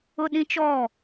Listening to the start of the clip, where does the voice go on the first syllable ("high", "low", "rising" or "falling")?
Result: high